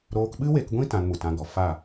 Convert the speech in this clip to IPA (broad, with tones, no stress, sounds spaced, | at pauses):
ɾ oː˧ k ɓ ɨ˦ w e˧ k ɡʷ ĩ˦ t ã˧ n m u˨ t ã˧ ɡ ɔ˨ f a˦˨